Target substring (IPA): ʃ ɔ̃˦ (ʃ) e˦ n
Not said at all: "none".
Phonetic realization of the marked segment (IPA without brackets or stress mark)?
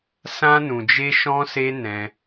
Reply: s